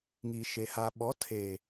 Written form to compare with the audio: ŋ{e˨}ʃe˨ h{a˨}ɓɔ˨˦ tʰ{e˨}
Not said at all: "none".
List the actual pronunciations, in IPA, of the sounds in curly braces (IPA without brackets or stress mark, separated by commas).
i˨, a˨, e˨